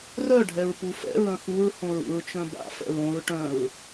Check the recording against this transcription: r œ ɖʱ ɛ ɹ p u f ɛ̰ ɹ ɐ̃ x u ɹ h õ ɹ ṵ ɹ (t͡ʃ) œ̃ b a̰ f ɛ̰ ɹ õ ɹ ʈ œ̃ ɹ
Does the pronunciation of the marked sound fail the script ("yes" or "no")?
no